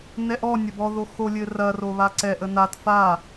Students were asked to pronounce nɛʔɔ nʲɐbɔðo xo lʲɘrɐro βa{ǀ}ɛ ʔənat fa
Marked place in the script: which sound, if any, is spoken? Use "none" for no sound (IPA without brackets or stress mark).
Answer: ǀ